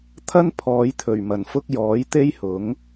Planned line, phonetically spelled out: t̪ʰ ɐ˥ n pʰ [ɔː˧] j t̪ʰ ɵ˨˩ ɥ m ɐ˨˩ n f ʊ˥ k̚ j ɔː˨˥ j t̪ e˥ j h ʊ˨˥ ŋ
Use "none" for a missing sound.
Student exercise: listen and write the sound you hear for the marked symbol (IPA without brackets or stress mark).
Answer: ɔː˨˧